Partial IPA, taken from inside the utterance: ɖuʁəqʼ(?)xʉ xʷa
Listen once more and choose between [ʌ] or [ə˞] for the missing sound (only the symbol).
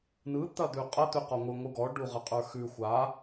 ə˞